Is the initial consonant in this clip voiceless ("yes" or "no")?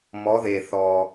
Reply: no